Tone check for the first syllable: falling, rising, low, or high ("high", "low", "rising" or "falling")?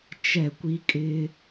falling